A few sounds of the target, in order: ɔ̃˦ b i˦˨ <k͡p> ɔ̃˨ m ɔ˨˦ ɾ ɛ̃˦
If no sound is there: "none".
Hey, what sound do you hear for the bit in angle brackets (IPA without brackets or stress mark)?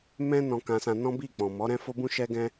k͡p